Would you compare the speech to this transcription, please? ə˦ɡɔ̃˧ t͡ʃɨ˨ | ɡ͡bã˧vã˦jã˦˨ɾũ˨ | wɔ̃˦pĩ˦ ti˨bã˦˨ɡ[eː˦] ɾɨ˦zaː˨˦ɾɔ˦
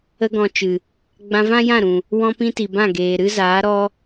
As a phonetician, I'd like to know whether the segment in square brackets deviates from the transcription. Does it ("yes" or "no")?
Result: yes